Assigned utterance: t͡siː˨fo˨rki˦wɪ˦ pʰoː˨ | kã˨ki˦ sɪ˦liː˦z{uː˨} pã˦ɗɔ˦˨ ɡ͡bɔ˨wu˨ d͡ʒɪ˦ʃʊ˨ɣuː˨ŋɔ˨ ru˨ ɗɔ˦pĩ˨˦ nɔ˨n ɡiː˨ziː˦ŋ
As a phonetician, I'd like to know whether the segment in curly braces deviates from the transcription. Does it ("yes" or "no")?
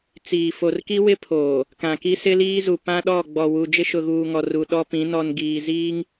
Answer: yes